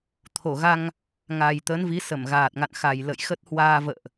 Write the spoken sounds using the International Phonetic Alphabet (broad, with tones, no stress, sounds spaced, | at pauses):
t̪ʰ o˧˩ ɣ a˧ ŋ | ŋ a˨˩ j t̪ ə˨˦ n v i˨˦ s ə˧˩ m ɣ aː˨˩ t̚ ŋ a̰˧˨ n x a˨˩ j l ə̰˧˨ j x ə˦˥ t̚ h w aː˧ v ə̰ː˧˨ ʔ